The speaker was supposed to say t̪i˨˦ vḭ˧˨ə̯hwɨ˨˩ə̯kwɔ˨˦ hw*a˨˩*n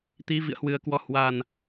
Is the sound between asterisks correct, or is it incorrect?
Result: correct